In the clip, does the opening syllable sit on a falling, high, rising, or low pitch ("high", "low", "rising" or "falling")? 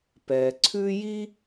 low